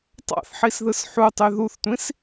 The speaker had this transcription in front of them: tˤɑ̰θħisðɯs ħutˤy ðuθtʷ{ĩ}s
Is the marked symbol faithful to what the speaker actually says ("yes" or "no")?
yes